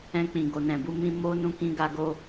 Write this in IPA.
ɛ̃˧k͡pĩ˨ɡo˨nɛ̃˨ bu˨˦mĩ˧ mo˦nũ˧ kĩ˦ ɡa˧ɡo˧

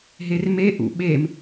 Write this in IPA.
ɦerme ʔṵɓem

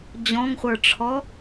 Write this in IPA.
d͡ʑɔ̃ŋχʷə˞ʈ͡ʂʰɔ

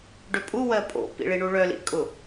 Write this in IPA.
ɖʏpʼuwɜ pʼo̰pḭ ɭiɳuɭœlḭ kʼʊ

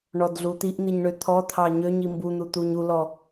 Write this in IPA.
ɳɔdɮut̪iʔn̪iɲ ɳøt̪ʰɔt̪ʰɑ ɲøɲ imbun̪u t̪uɲulɔ

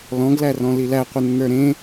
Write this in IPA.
lɔ̃ɡlærɔ̃ lilæqʷɘnːə˞ ɾẽ

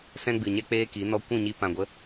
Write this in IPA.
sɛ̃˦ɡ͡bɨ˨ɲɛ˦ k͡peː˦ki˨˦ nɔ˧kʷũ˦˨ɲi˧ pã˨ɡʷə˨˦

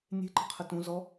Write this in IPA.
nʲe̤ǃə̤qʰə tũ zɔ

